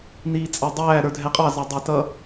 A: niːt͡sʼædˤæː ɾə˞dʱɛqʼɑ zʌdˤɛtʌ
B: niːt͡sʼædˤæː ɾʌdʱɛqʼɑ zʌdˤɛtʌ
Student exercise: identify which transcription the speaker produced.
A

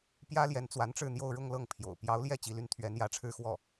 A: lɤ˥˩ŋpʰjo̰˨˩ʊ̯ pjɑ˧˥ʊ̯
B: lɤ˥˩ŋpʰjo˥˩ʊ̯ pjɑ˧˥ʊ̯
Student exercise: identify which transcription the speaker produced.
A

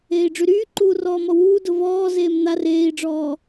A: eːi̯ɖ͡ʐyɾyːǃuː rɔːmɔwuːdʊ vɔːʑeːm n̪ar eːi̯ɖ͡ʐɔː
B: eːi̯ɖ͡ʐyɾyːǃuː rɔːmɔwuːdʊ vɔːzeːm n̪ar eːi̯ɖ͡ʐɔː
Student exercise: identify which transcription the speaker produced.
B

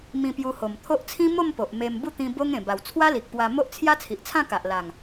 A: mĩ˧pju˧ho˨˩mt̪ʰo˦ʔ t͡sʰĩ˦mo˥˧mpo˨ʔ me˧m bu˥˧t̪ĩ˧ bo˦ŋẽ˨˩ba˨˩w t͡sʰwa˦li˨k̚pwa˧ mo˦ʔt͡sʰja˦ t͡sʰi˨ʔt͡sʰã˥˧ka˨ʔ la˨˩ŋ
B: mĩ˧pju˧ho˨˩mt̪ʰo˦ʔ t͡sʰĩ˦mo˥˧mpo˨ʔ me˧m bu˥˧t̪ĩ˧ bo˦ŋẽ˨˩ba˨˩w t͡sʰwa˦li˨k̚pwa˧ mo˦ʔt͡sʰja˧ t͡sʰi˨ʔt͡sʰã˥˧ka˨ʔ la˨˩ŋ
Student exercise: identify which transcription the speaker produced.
A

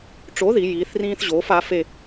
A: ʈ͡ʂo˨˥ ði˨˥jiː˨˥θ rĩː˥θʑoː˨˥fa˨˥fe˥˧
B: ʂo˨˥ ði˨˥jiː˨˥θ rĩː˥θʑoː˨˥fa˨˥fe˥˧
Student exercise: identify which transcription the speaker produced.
A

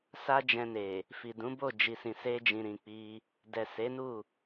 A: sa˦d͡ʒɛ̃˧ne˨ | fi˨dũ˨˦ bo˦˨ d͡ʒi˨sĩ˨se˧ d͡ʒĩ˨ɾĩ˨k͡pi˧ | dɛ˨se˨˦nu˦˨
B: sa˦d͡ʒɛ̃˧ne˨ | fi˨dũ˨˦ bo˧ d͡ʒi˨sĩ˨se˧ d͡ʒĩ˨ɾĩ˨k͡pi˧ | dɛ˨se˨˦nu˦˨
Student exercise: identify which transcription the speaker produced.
A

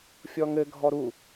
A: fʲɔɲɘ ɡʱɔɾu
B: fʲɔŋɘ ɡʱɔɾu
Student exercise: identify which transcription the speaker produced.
B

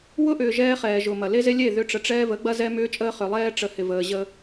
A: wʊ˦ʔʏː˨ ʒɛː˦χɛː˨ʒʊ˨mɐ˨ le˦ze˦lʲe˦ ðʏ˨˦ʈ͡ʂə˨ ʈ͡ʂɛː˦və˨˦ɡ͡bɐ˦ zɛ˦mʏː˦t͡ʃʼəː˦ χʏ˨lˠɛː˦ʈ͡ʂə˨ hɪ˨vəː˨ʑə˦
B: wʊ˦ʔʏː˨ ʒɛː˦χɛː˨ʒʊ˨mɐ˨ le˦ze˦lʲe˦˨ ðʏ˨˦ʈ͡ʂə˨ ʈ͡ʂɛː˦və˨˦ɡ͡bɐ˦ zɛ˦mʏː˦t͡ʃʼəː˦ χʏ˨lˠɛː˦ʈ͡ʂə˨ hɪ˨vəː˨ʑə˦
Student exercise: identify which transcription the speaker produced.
B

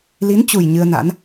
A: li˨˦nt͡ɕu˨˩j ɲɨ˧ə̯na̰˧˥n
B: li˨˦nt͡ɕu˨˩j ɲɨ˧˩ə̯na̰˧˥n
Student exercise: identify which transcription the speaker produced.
A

